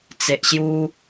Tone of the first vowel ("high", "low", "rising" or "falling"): low